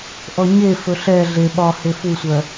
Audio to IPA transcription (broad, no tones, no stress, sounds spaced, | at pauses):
ʔ ɔ ɲ e f ɵ ɬ ɛ ɮ e ɓ ɒ h e f u sʷ ɜ